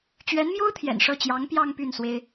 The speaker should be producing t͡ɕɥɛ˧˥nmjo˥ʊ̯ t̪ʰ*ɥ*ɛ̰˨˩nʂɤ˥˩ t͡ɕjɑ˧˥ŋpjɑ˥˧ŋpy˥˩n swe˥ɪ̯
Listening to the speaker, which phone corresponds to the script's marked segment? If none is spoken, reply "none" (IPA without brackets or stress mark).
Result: j